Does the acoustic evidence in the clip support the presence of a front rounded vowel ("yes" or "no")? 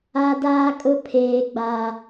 no